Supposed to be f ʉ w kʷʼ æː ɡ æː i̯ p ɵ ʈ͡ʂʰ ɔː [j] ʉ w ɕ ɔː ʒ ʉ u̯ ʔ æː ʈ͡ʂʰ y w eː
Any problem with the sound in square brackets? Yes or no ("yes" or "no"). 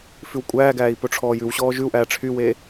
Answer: no